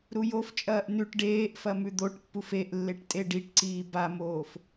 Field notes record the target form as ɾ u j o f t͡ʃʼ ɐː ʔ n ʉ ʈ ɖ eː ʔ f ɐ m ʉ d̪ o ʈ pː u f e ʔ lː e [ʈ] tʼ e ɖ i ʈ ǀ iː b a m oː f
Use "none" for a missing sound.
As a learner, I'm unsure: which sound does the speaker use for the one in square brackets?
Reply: ʈ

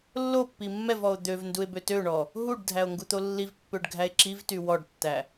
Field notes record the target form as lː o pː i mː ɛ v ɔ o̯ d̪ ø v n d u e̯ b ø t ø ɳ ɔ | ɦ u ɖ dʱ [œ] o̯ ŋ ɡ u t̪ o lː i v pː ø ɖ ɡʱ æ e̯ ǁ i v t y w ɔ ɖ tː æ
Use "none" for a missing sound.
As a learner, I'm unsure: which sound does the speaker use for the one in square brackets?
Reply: æ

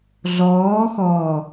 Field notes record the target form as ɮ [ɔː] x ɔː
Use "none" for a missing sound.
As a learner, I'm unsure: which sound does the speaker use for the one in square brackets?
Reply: ɔː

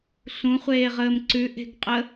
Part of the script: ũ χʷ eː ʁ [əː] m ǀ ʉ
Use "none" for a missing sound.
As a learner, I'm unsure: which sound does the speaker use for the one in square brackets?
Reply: əː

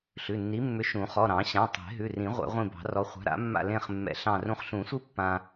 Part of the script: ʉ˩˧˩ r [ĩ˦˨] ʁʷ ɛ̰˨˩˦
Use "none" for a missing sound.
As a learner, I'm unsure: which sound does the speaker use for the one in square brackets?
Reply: ĩ˨˩˦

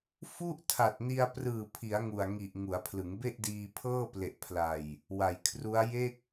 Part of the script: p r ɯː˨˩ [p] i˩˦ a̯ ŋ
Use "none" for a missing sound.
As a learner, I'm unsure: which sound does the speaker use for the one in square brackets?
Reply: pʰ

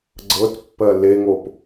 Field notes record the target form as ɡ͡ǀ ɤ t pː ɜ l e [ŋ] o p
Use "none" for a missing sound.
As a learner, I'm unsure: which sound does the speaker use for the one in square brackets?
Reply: ŋ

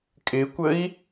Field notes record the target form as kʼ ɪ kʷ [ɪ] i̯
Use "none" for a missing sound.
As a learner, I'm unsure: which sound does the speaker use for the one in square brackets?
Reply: ə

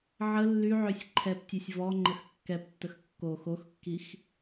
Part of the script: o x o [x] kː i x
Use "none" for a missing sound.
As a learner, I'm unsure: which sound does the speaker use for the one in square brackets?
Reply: x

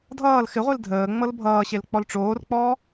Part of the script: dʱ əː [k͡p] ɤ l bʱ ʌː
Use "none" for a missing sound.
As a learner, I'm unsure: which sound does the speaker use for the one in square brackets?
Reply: ŋ͡m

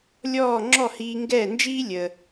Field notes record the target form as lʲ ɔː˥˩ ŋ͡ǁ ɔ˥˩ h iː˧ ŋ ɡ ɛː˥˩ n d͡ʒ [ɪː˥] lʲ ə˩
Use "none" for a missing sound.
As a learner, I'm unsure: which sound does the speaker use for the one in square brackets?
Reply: iː˥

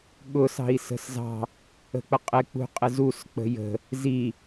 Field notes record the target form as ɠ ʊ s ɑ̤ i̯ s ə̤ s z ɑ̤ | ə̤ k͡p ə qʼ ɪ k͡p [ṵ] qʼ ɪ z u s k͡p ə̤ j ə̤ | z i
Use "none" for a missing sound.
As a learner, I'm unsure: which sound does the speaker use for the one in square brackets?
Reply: ṳ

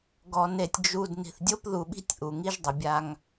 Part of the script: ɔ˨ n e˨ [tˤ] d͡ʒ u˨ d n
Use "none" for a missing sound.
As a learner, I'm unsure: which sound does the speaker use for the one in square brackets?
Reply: tʲ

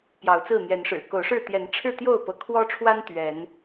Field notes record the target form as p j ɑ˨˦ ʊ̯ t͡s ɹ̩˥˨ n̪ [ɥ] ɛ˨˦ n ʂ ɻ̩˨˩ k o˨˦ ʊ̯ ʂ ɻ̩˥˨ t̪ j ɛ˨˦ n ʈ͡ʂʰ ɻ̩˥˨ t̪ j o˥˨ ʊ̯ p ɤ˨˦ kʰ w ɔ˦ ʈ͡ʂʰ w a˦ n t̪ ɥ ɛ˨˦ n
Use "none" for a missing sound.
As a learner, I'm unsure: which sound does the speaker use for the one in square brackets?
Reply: j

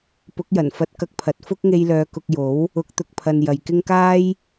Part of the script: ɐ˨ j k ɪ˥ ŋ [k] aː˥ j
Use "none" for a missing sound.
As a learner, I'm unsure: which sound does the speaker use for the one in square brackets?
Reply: k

